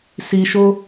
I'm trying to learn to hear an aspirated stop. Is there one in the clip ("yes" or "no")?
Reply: no